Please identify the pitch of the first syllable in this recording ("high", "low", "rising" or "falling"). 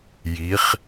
rising